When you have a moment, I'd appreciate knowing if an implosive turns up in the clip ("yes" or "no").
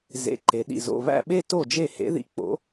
yes